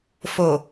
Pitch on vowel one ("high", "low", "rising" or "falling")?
low